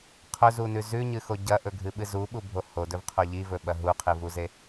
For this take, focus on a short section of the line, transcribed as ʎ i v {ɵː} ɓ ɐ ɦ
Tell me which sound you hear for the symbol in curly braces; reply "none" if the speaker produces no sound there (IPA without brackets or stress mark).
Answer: ɵ